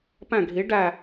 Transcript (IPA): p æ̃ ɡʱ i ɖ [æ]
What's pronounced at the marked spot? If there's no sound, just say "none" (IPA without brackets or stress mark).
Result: æ